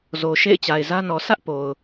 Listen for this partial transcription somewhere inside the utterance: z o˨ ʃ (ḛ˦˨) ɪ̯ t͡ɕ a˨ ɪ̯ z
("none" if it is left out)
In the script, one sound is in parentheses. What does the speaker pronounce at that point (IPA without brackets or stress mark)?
ḛ˦˨